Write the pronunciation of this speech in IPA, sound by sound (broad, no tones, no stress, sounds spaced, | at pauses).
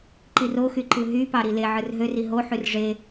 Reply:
ǃ i r o x y ǃ ɯ ɦ y p ɑ ɾ i l e ʕ ɯ r ɦ ø r i ɦ o ħ y r ʐ e